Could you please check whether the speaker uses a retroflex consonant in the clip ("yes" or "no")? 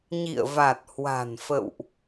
no